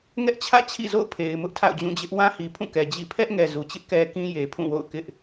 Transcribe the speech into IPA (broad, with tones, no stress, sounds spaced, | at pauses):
ŋ ɛ˦ ʔ t͡ɕʰ ä̰˦˨ t͡ɕʰ ḭ˦˨ z o̰˦˨ ʊ̯ pʰ e˨ ɪ̯ m ʊ˦ ʔ tʰ a̰˦˨ ʊ̯ d͡ʑ ũ˦˨ d͡ʑ ɪ˦ ʔ w ã˦ h i˨ pʰ ũ˦˨ k ɛ˨ d͡ʑ ḭ˦˨ pʰ ɛ˦ ʔ ŋ ɛ˨ z u˨ t͡ɕ ɪ˦ ʔ k ɛ˦ k ĩ˦ j e˨ pʰ ũ˦˨ w o̰˦˨ ʊ̯ k ɪ˦ ʔ